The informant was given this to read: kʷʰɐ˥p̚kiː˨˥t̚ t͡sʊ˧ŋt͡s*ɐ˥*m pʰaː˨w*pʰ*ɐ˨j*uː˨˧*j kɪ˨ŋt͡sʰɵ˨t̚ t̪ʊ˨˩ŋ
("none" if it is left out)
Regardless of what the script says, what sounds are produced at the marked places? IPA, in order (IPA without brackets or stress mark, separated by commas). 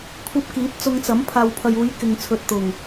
ɐ˨˥, pʰ, uː˨˧